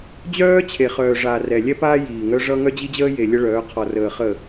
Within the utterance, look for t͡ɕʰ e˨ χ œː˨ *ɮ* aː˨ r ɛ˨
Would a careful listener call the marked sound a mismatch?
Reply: yes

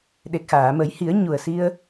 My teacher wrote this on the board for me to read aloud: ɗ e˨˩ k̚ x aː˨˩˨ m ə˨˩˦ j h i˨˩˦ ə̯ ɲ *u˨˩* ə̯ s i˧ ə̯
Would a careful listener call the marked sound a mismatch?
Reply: no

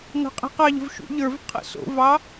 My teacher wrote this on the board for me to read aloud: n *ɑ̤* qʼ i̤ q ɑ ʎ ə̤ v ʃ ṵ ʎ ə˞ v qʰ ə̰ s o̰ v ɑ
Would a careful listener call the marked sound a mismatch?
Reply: no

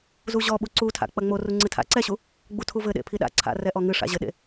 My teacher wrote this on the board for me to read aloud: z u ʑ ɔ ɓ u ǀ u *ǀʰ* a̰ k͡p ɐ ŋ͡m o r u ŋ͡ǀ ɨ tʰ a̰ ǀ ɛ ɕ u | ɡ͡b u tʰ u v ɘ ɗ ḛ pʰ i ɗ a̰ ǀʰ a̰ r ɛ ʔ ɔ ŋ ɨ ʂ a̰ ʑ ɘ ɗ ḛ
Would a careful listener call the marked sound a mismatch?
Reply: yes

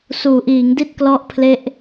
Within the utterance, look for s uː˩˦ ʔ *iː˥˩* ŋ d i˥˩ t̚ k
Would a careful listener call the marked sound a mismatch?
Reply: yes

